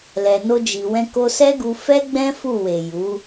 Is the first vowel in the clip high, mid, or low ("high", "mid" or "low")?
mid